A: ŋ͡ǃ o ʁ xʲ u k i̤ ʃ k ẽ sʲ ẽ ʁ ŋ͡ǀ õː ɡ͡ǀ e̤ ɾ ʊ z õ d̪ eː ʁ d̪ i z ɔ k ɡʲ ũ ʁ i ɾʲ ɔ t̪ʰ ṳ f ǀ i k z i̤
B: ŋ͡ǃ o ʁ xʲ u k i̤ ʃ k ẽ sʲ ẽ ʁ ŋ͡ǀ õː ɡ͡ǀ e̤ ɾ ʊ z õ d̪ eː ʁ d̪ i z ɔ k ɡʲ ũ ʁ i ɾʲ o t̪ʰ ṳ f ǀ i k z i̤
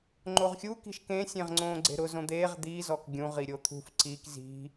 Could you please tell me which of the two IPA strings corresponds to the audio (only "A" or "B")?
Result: B